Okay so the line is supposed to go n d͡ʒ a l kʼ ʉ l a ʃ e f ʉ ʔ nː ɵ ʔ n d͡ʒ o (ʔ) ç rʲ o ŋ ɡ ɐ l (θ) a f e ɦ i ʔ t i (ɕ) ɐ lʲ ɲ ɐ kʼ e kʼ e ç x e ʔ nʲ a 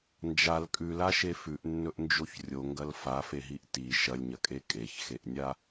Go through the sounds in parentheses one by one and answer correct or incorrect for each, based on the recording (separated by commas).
incorrect, incorrect, incorrect